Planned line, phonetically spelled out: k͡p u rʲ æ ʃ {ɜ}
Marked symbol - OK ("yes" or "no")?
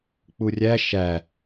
no